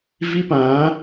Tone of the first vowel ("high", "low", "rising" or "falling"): high